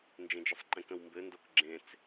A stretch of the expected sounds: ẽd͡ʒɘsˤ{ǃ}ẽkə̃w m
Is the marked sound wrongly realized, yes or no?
no